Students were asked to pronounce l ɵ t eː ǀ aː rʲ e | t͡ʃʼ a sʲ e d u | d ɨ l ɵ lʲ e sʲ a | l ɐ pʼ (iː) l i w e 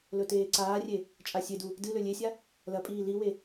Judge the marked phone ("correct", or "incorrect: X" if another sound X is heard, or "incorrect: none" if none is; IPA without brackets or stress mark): correct